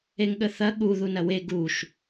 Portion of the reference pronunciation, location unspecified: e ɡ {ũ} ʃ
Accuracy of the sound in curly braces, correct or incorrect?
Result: incorrect